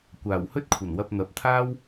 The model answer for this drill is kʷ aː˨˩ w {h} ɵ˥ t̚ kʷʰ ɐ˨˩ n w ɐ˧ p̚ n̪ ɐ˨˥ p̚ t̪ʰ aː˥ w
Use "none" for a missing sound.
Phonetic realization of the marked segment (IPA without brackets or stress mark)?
h